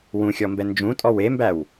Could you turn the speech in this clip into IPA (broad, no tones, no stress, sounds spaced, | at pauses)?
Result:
w ũ xʲ ɔ m b ɛ n d͡ʒ ũ tʼ ɔ w e m b æ w